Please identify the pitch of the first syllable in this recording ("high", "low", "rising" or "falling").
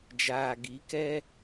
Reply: low